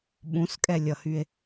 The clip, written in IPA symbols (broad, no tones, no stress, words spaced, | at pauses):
ɓũskʼɛlʲʌhye̯